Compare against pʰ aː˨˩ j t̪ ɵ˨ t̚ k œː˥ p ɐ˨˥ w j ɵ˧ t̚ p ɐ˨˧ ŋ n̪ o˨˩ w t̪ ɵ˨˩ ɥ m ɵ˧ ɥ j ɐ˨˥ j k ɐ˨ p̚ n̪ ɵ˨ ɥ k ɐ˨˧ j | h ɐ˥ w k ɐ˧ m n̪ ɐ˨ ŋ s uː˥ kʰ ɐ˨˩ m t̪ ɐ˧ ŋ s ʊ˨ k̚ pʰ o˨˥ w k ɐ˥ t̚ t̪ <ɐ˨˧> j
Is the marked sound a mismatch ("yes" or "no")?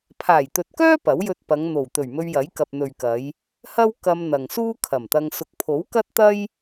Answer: yes